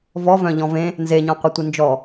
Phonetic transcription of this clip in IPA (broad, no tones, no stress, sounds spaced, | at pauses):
v ɔ v œ̃ ʎ ɔ̃ v ẽ | n z e ɲ ɔ̃ qʷ i tʷ i n d͡ʒ ɔ